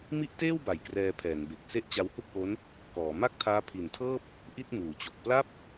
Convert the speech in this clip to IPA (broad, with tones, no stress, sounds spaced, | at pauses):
m i˥˩ ʔ t eː˥˩ w b a˩˦ j k r ɛː˧ pʰ ɛː˩˦ n b e˨˩ k̚ s e˦˥ ʔ t͡ɕ a˧ w h u˥˩ k̚ ʔ o˦˥ n | k ɔː˩˦ m a˥˩ k̚ tʰ aː˦˥ pʰ i˨˩ n tʰ ɤː˥˩ p̚ | ʔ i˥˩ t̚ m uː˩˦ t͡ɕ o˨˩ k̚ p l a˥˩ p̚